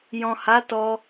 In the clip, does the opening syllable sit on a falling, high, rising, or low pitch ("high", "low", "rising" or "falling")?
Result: low